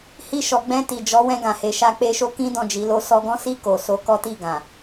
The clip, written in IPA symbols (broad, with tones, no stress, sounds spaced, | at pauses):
h i˧ ʃ ɔ˨ ɡ͡b ɛ̃˧ t i˨ d͡ʒ ɔ˨˦ w ɛ̃˧ ɡ ã˨ h e˨ ʃ a˧ k͡p e˧ ʃ o˦ k ĩ˦ d ɔ̃˦˨ d͡ʒ i˨˦ l o˦ s ɔ˧ ɡ ɔ̃˦ s i˦˨ k o˨ s o˨˦ k ɔ˦ t i˦˨ ɡ ã˨